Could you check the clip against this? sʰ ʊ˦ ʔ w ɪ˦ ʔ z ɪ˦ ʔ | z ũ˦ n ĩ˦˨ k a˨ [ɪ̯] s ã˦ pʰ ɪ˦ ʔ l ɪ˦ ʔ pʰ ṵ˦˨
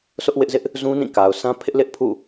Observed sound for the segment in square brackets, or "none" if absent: ʊ̯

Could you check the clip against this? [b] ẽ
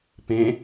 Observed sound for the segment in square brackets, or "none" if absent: p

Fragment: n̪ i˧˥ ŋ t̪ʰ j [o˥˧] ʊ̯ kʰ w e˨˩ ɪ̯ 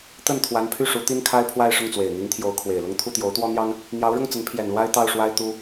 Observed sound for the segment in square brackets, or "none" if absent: o˧˥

